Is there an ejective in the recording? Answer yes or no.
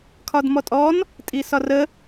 yes